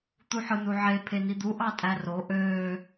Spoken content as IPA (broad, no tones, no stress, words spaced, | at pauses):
t̪uħɯnuʕe pʰenid̪u ʔɑtʼæro ʔøː